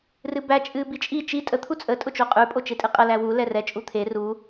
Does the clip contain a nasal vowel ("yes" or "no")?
no